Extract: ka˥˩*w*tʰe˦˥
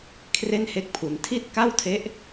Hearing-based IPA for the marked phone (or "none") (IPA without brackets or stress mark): w